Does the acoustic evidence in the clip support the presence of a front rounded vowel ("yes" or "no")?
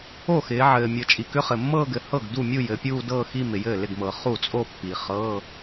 yes